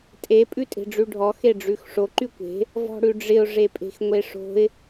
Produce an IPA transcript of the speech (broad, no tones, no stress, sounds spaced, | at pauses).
tʼ e pʼ ʉ tʼ e̤ ɖ͡ʐ ʉ ɖʱ ɔ x e ɖ͡ʐ ʉ x ʂ o ǃ y kʷ e̤ | v ɔ̤ ɽ ʉ ɖ͡ʐ ɪ ʊ̯ ʐ e pʼ e̤ x ŋʷ e ʂ o̤ ɪ̯